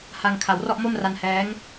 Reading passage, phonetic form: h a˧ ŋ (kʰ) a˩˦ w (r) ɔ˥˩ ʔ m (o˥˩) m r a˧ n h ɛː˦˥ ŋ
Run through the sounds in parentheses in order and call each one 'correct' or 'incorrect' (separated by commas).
correct, correct, correct